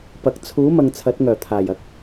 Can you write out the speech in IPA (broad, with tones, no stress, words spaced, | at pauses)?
pɐ˨k̚ t͡sʰuː˨˥mɐ˨ŋ t͡sʰɐ˨˥t̚ŋœː˨˩t̪ʰaː˨˩jɐ˨˥k̚